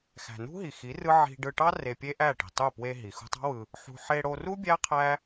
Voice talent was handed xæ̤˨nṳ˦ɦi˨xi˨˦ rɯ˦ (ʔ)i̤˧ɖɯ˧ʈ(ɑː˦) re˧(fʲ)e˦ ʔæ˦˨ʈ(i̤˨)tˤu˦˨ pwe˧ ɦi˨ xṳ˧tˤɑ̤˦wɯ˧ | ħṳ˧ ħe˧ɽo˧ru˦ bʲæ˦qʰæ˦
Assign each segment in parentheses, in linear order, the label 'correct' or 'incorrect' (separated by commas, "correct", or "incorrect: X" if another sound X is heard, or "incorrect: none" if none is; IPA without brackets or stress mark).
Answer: incorrect: ʕ, incorrect: ɑ˦, incorrect: pʲ, correct